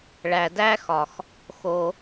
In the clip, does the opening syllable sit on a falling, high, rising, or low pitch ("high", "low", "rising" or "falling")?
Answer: low